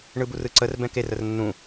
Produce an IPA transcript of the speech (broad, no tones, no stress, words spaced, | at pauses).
ɳɯburɯǀər bɛ̃ker ərnːũ